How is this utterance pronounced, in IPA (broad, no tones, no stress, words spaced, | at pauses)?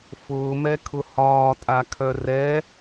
fʊːmɛkʰʊ hɒːtʼakʰœ rɛ